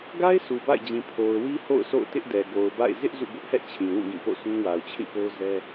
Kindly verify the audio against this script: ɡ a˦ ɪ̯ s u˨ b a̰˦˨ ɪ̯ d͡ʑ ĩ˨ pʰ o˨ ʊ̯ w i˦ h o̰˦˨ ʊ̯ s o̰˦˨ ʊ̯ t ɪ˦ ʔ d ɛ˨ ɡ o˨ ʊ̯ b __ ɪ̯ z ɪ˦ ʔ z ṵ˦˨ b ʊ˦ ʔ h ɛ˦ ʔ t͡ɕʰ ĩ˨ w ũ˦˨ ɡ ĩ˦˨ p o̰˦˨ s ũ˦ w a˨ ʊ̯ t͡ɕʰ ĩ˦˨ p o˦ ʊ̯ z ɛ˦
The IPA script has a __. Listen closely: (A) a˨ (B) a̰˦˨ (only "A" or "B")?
B